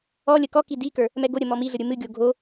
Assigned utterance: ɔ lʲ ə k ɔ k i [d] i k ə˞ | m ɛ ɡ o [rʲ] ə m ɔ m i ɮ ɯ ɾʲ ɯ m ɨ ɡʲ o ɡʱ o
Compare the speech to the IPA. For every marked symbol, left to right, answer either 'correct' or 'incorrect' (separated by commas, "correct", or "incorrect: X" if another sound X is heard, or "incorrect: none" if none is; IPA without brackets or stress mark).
correct, incorrect: ɾʲ